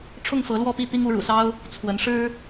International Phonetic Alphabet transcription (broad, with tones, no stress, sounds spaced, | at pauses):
ʈ͡ʂʰ ʊ˥˨ ŋ f ɤ˨˦ l w ɔ˥˨ p i˥˨ t̪ i˦ ŋ u˨˦ ɻ ṵ˨˩ s ɑ˦ ʊ̯ | t͡sʰ w ə˨˦ n ʂ ɻ̩˦